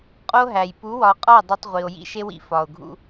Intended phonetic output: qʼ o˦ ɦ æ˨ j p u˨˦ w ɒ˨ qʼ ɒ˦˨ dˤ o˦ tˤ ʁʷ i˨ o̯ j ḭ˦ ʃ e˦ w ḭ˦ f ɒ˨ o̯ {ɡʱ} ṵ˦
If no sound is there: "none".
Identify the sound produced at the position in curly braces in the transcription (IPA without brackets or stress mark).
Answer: ɡʱ